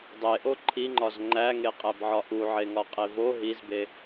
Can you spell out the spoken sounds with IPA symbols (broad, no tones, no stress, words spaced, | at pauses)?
dˤeʔo ǃʰiŋ͡ǃɒz ŋ͡ǃæŋeqʼæbʕɒ ʔuʕeŋɒqʼe vo ɦizbe